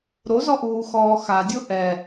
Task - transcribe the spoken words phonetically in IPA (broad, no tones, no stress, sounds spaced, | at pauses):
ɾ o z ɔ ʔ uː x ɔː x a dʲ o ʔ ɛ